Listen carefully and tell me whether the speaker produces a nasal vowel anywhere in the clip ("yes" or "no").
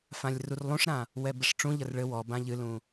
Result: yes